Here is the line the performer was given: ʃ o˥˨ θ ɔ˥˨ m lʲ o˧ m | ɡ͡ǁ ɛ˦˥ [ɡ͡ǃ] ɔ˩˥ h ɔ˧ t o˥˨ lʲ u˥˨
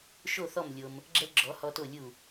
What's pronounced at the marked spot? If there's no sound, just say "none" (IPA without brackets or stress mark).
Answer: ɡ͡ǁ